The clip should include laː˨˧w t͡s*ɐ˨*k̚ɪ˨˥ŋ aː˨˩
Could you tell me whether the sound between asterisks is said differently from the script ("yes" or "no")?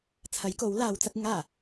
yes